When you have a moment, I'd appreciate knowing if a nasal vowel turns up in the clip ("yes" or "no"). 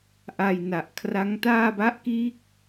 no